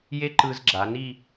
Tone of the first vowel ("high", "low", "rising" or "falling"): high